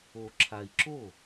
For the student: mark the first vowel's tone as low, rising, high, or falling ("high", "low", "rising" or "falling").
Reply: low